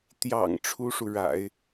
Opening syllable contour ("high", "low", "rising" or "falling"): low